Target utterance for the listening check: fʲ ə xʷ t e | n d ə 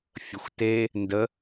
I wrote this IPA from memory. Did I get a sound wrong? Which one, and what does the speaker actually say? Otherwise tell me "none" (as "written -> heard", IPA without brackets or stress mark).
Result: none